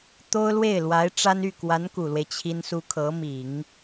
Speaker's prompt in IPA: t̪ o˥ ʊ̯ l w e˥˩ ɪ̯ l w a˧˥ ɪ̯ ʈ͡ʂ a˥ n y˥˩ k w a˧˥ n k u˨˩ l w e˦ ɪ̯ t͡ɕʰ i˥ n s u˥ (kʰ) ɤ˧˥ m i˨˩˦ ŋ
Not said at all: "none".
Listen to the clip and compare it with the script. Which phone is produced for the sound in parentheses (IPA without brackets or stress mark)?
kʰ